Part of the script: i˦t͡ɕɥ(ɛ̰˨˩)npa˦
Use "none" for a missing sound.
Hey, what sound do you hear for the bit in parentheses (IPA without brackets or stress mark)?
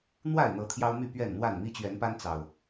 ɛ˨˦